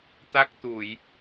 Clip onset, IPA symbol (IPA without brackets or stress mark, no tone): t̪